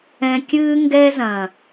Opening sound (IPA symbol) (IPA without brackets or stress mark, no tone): ɛ̃